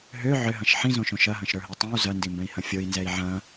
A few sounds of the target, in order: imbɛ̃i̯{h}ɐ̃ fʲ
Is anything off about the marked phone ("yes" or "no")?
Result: no